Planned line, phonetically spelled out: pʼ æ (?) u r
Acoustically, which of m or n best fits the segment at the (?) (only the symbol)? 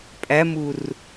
m